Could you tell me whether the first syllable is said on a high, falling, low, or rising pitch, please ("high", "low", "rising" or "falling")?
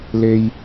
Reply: low